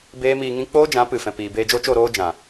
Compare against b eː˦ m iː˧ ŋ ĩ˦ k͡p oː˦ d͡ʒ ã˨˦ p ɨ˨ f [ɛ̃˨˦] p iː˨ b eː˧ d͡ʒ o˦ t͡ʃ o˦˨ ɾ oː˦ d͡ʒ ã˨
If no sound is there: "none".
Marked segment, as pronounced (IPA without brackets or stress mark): ɛ̃˨